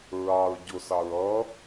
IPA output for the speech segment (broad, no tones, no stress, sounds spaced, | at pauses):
ɹ ɑ ɹ ɟ ʊ s ɑ ɹ ʌ